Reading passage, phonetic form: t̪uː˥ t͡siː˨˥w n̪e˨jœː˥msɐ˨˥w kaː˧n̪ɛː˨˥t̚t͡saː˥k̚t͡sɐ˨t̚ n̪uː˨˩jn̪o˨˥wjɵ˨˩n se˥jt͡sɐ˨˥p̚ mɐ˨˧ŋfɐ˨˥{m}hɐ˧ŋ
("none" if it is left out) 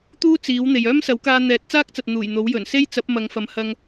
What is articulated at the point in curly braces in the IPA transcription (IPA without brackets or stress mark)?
m